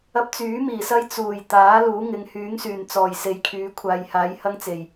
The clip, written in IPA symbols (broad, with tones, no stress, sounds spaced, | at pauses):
ɐ˧ p̚ t͡s yː˨˥ m iː˨˩ s ɐ˧ j t͡s uː˨˩ j t̪ aː˨˥ l uː˨˥ ŋ ɪ˨˧ ŋ h yː˨˥ ŋ s yː˨˩ n t͡s ɔː˨˩ j s e˨˧ j kʰ yː˨˧ kʷʰ aː˨ j h aː˨˥ j h ɐ˥ ŋ t͡s e˨˩ j